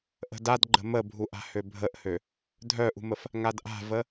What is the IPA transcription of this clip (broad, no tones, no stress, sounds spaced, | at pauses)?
ʔ ə̤ d a d ɡ͡ǃ ə̤ m ə bʱ u ʔ a̤ h ø bʱ ə ʔ h ø | dʱ œ ʔ ṳ m ə f | ŋ a d ʔ a̤ v ə